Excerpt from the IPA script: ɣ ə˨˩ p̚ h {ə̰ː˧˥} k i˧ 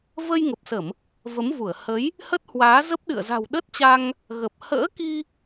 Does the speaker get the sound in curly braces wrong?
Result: no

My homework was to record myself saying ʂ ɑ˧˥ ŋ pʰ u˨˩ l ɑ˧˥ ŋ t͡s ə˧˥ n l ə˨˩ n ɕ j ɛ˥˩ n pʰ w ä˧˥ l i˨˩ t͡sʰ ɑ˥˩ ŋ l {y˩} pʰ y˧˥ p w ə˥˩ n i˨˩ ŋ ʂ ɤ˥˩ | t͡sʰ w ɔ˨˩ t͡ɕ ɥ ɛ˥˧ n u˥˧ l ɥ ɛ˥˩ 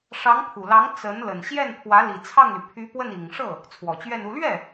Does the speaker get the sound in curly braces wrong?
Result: no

